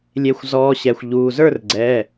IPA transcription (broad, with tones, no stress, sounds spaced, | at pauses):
lʲ e˨˦ xʷ z ɔː˨˦ ɕ ɛ˩˧˩ xʷ ʎ uː˩˧˩ z ə˞˥˨ r ɡ͡ǀ ɛː˩˧˩